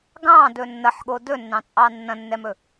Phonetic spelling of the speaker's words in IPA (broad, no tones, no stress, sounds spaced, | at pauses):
ɡ ɑ̃ d ɵ nː ɐ ħ ɠ o d ɵ nː ɑ̃ t͡sʼ ɑ nː ɐ̃ nː ɛ m ɵ